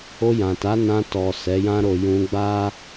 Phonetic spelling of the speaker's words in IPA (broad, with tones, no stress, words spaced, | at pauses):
o˧jã˨ta˨˦nã˧ tɔ˨ sɛ˨˦jã˦ɾo˧ jũ˧ɡ͡ba˦